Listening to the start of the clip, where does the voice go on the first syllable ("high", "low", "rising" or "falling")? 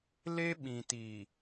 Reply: high